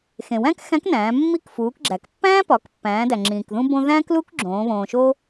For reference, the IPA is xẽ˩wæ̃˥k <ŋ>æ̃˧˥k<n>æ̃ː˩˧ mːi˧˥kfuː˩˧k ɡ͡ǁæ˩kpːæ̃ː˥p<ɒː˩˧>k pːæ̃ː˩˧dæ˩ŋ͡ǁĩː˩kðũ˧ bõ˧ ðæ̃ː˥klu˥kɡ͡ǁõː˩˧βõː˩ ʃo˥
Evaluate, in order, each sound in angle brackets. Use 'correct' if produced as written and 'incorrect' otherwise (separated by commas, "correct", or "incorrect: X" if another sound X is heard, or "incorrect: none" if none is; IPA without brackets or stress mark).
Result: incorrect: x, correct, incorrect: ɒ˩˧